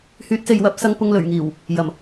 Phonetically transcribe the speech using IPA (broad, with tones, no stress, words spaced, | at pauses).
hyː˨˥t̚se˨jwɐ˨˥p̚ sɐ˧ŋpʊ˧ŋlɵ˨˩ɥ ŋiː˨˩w | jɐ˨˩m